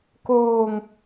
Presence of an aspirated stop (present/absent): absent